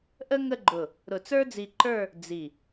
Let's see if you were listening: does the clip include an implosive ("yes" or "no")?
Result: no